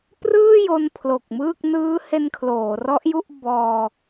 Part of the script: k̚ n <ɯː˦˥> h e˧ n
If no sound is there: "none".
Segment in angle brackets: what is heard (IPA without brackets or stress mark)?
ɯː˦˥